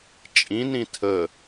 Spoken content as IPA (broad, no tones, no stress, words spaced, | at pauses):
t͡ʃʼĩnĩ tʰə